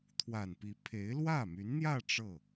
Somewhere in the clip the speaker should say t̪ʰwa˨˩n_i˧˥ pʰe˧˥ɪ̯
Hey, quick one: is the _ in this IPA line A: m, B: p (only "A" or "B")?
B